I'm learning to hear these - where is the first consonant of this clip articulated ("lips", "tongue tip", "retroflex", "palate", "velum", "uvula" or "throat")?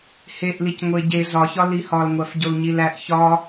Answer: throat